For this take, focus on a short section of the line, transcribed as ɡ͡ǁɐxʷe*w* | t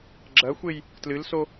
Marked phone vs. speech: incorrect: j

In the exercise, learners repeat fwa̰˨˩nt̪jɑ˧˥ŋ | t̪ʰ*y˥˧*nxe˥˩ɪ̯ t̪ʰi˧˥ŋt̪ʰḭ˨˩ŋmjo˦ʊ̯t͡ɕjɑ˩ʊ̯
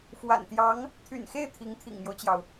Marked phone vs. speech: incorrect: y̰˨˩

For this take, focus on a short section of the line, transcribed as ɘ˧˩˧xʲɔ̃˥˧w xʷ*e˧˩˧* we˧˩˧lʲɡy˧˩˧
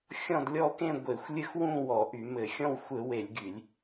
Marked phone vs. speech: incorrect: ɘ˧˩˧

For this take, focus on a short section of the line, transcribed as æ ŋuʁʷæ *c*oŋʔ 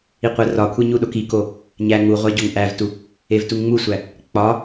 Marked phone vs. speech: incorrect: ɟ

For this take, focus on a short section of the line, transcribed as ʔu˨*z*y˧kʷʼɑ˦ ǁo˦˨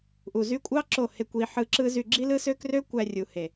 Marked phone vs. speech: correct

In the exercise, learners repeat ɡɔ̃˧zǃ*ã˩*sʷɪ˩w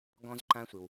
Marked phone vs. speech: incorrect: ã˧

